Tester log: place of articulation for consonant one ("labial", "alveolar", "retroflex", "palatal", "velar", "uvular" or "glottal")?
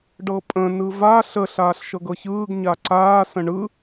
retroflex